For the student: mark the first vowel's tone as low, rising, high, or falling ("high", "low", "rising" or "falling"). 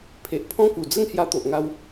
low